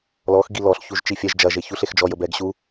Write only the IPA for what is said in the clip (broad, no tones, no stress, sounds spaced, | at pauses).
l ɔ x ɡ i l ɔ ɬ ç u ʒ t͡ʃ i fʲ ɛ ʒ d͡ʒ ɐ ʒ e ç u ɬ e x d͡ʒ ɔ j ə b ɛ ɡ ɕ u